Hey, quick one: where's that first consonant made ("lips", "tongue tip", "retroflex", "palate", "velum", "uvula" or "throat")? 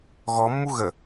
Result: velum